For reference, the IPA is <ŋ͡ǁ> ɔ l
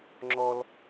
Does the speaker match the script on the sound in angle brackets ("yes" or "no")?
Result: yes